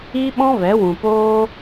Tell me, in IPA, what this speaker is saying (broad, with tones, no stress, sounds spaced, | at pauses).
i˦ ɓ ɔ̃˦ v ɛ˨˦ w ũ˨ p oː˦